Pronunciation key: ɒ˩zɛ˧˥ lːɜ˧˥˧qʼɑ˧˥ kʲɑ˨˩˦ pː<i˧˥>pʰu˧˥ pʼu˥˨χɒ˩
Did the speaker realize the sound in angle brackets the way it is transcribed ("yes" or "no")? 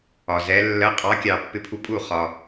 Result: no